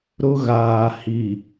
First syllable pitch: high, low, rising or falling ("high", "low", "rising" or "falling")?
high